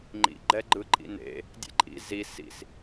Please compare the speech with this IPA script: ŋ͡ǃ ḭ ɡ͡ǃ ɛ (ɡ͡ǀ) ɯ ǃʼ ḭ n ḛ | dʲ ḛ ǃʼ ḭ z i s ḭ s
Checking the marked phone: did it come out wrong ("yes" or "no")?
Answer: yes